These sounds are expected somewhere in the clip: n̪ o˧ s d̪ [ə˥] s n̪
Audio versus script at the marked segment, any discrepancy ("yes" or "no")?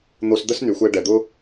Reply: no